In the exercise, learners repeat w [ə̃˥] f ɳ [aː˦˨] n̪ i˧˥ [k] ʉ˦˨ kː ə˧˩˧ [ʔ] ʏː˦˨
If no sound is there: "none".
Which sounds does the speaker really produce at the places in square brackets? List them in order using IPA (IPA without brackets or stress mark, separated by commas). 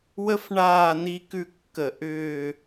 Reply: ə˥, aː˦˨, k, ʔ